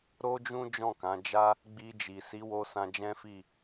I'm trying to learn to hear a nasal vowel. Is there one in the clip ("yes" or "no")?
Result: yes